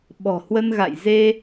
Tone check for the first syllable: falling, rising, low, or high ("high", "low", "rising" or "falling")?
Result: low